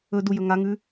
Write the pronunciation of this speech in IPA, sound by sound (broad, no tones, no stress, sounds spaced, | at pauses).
ɵ d u j ɵ ŋ a ŋ ʉ